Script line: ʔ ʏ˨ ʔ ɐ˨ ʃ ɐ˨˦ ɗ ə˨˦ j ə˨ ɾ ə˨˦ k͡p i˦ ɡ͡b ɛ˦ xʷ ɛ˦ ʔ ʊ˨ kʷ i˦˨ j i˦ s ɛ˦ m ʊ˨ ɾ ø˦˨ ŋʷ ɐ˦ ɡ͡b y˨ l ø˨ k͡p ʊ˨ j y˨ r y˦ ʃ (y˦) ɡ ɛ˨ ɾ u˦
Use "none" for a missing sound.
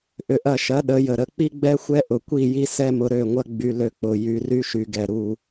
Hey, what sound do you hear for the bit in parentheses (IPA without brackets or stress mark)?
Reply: y˨